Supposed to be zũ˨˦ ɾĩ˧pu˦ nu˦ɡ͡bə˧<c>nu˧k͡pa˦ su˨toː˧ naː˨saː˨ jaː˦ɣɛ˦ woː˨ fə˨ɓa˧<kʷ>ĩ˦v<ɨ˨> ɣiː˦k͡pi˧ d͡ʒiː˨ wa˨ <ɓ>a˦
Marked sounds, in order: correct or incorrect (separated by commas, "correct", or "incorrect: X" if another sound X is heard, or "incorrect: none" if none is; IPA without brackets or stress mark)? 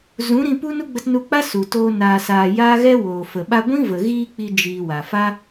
incorrect: t, incorrect: ɡʷ, incorrect: ə˨, incorrect: f